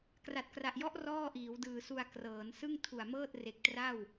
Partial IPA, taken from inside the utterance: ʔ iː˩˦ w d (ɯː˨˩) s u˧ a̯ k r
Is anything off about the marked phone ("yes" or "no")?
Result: no